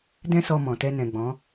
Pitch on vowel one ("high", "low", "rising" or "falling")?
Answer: high